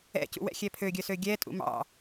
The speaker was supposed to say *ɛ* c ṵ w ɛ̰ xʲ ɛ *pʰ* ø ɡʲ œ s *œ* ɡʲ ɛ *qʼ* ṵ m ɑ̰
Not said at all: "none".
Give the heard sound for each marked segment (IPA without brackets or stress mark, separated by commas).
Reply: ɛ̰, pʰ, ø, tʼ